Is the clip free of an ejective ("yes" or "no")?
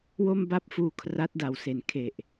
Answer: yes